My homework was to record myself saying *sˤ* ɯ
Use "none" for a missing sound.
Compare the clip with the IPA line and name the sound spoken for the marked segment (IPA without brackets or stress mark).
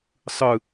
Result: sˤ